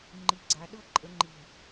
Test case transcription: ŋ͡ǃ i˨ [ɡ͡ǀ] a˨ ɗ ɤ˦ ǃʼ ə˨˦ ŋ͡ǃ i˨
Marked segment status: correct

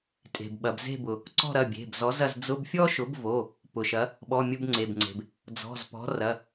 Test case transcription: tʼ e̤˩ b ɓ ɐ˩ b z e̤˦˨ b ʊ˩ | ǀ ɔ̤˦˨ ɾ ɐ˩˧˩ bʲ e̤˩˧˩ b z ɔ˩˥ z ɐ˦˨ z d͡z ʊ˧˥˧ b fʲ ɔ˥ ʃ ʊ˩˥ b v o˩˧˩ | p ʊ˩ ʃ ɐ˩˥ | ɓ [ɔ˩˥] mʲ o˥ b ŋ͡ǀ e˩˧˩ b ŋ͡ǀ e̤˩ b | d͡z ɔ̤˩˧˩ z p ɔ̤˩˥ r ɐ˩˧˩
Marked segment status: incorrect: ɔ˧˥˧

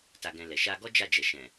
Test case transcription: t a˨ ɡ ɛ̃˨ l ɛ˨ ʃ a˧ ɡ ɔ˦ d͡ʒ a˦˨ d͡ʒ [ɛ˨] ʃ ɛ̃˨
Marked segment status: correct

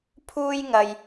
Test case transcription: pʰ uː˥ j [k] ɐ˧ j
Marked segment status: incorrect: ŋ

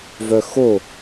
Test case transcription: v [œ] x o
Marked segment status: correct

